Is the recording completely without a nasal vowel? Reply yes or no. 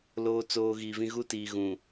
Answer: no